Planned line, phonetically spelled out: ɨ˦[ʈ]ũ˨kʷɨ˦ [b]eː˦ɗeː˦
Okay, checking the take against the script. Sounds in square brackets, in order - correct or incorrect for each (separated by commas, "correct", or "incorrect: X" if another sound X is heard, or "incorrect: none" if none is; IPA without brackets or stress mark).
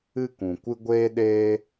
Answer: incorrect: k, incorrect: ɡʷ